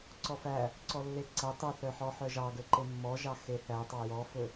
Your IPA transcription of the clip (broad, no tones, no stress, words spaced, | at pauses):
ǀɔfæ | ǀɔlːeǀæ tˤɵθœħɔ ħœʒɑɡɵ ǃemːɔʒɑ xeθætˤɑ jɔfɵ